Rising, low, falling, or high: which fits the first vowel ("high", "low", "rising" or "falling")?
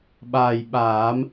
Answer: low